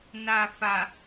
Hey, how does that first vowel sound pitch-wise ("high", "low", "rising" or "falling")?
low